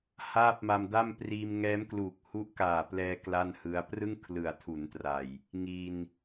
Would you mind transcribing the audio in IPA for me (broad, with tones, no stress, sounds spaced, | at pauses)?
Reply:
h aː˥˩ p̚ m a˧ m d a˥˩ m p r iː˧ m ŋ ɛː˦˥ m k l uː˨˩ k̚ h u˦˥ ʔ k aː˨˩ p l ɛː˧ k l a˥˩ n h ɯ˦˥ a̯ p r ɯ˥˩ ŋ kʰ l ɯ˨˩ a̯ tʰ u˩˦ n t r a˨˩ j | ŋ i˧ n